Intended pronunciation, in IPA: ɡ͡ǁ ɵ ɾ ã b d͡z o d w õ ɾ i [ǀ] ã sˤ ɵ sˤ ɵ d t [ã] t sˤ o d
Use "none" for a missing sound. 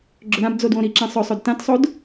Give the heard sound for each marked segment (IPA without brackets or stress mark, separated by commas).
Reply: ǁ, ã